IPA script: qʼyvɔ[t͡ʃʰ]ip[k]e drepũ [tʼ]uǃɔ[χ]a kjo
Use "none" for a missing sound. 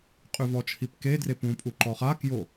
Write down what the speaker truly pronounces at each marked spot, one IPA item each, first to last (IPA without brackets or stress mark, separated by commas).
t͡ʃʰ, k, pʼ, χ